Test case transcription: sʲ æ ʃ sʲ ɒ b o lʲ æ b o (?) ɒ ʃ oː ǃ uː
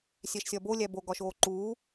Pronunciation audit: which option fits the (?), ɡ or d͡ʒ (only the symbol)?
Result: ɡ